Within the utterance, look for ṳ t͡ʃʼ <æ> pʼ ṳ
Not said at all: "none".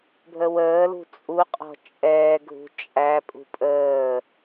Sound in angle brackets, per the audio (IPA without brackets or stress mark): æ